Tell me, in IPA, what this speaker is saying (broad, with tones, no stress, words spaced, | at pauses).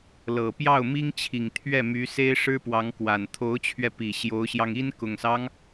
lɤ˨˩pjɑ˥˩ʊ̯mi˥ŋt͡ɕʰi˨˩ŋ t̪ʰɥɛ˥˩my˧˥ se˥ɪ̯ʂɻ̩˥pwɑ˧˥ŋ kwa˨˩nt̪ʰo˧˥ʊ̯t͡ɕʰɥɛ˧pi˨˩ ɕjo˧˥ʊ̯ɕjɑ˧ŋi˥n kʊ˨˩ŋsɑ˦ŋ